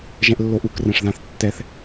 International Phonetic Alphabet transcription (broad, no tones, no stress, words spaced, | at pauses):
ʒɛ̃ʔlːoʔuk rɛ̃ʂðãθtːɛθ